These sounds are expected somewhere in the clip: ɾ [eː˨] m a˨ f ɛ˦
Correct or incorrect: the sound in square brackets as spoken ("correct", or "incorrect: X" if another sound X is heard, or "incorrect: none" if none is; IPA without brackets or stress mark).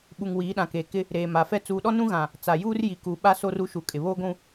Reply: correct